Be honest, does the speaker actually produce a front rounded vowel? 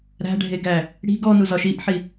no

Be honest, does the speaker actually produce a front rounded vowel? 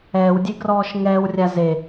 no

